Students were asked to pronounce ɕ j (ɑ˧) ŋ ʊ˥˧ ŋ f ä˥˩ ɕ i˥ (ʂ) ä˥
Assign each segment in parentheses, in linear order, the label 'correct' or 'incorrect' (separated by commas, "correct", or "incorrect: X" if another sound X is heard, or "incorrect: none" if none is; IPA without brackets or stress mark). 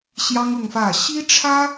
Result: incorrect: ɑ˥, incorrect: ʈ͡ʂʰ